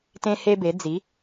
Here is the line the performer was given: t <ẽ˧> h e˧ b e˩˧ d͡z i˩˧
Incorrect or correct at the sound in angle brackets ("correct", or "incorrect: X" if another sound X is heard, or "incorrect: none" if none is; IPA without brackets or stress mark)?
correct